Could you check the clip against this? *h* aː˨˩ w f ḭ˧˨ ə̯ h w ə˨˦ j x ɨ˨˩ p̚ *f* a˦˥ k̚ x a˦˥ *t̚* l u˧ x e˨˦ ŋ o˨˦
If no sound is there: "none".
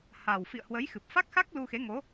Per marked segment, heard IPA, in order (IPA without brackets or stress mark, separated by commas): h, f, k̚